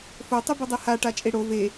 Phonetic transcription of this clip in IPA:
fo tˤybudˤeha ʈat͡ʃʼeɽo ve

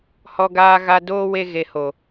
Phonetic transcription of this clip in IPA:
hɔ˧ɡaː˧ɣa˧ doː˦ we˦ ɣe˧ho˨

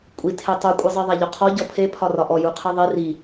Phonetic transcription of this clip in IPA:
kʷʼitʰe tˤukʷʼizˤi ðˤæʎɔqʰɔ ɟɔpʰe pʰɒrɒʔɔ juqʰiðˤi ri

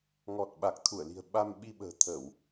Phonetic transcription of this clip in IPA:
ŋɔ˨˩t̚ɓa˨˩k̚t̪ʰu˧˩ə̯li̤˨˩ə̯ ɓa˧m ɓi˧ɓə̤ː˨˩t̪ʰə˧˩˨w

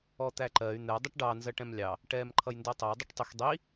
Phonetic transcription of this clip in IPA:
ɔt̪æǃɜy̯ n̪ɛ dˤəʈɖɑ nzɜʈɛ̃mlʲɑ | ʈɛːmǃʰʌjndɜtˤɛj dˤʌʈtˤɪx dˤi

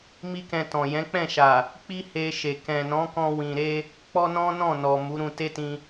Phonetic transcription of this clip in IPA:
mi˦kɛ̃˧tɔ̃˨ jɛ̃˨˦k͡pɛ̃˦˨ʃa˨ | k͡pi˦he˧ʃe˨ kɛ̃˨nɔ̃˨˦kɔ̃˧ wĩ˨ɾe˧ | k͡pɔ˦nɔ̃˦nɔ̃˦˨nɔ˨ mu˨˦ɾũ˧te˦tĩ˧

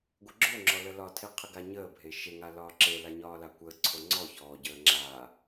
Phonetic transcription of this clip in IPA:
ɡʷəɡ͡ǁoŋ͡ǁɔ ləlɒtʰe qʰəɡaɲəːbʱe ʃeŋa lɒːǁela ɲɒːlakʷəːǀʰo ŋ͡ǀɔ çɔːɟəː ŋ͡ǁaː

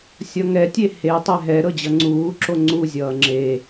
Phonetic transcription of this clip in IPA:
sʲʌŋɛtʲe he tˤɛɦɛ ɾɤd͡ʑʌŋ͡ǀuːǁo ŋ͡ǀu zʲʌːŋ͡ǁe

